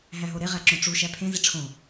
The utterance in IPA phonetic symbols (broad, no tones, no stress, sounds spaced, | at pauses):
ɦ æ ɦ o ɾ e ʁ æ ǁ õ ʈ͡ʂ u ʃ æ pʰ ẽ z i ʈ͡ʂʰ õ